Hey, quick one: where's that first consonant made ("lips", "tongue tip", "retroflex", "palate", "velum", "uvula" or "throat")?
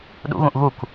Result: tongue tip